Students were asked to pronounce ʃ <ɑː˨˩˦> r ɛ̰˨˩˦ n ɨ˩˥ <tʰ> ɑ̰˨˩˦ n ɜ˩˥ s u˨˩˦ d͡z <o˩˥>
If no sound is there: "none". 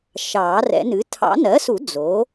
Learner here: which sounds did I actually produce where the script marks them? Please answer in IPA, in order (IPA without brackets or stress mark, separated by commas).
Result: ɑː˨˩˦, tʰ, o˩˥